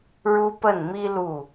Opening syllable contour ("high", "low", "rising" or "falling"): high